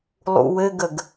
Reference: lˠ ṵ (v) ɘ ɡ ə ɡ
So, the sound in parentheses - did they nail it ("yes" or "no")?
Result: no